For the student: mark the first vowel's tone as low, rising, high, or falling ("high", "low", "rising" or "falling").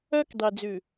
high